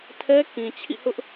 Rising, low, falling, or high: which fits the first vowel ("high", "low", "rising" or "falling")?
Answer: high